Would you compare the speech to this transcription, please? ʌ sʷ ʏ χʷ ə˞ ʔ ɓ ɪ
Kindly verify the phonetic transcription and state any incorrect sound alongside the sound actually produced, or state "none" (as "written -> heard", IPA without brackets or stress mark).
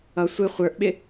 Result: ʏ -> ɪ